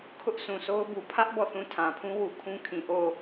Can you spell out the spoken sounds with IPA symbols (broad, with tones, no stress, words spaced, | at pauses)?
kʰʊ˦ʔsʰũ˨sʰo˦ʊ̯bu˨ pʰä˦ʔ bɔ˦˨θũ˦˨ tʰã˨pʰũ˦wu˨ kʰũ˦kʰĩ˨ʔo˦˨